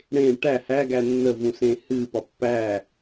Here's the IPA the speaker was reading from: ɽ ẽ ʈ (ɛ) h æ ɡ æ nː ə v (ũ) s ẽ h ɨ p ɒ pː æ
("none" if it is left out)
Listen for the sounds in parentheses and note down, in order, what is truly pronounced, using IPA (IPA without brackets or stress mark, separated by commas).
æ, ũ